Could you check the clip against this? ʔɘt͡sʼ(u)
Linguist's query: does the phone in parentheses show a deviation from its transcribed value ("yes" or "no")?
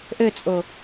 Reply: yes